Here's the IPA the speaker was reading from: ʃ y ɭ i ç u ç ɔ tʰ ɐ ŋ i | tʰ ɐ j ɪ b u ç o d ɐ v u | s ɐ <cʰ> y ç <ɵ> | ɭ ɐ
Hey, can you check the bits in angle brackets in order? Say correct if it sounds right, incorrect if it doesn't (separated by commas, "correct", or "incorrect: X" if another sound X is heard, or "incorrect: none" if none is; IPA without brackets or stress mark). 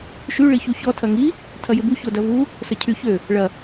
correct, incorrect: ø